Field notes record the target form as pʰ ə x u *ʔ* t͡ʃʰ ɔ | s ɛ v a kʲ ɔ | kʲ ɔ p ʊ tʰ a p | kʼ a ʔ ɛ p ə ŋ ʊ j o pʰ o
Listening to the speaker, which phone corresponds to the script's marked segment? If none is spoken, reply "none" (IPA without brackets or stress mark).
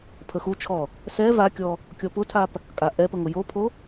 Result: none